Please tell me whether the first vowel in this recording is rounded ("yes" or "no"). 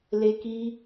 no